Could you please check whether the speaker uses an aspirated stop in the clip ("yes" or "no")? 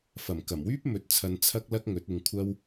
yes